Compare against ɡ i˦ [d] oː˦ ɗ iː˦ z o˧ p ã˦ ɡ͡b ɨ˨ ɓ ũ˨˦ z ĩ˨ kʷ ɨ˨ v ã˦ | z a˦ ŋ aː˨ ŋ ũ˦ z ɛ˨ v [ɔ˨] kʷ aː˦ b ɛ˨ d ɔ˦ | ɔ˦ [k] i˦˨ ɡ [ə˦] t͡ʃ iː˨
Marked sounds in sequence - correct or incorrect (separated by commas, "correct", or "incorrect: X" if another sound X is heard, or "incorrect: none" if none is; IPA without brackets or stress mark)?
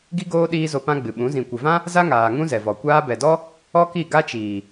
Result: incorrect: ɡ, correct, correct, incorrect: a˦